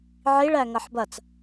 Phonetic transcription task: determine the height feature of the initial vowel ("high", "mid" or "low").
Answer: high